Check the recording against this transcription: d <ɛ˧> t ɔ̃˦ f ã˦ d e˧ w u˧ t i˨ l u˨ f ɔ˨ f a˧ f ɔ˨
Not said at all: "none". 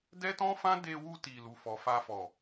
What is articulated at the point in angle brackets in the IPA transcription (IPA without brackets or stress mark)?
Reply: ɛ˦